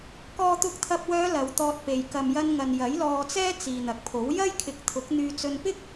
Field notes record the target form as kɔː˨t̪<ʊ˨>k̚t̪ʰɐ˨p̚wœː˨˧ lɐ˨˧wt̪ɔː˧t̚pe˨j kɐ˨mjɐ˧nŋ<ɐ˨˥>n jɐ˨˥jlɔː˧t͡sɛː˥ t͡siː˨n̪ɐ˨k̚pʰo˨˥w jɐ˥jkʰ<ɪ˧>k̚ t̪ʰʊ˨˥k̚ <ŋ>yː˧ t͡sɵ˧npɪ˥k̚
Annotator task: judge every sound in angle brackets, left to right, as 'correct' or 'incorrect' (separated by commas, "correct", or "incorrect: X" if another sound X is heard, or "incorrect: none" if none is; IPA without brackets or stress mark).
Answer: incorrect: ʊ˨˥, incorrect: ɐ˨, incorrect: ɪ˨˥, incorrect: n̪